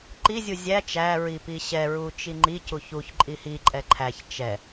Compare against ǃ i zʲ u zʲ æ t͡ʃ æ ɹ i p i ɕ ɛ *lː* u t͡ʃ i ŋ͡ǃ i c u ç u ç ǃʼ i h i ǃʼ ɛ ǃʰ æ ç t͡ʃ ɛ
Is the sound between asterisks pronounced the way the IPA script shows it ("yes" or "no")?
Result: no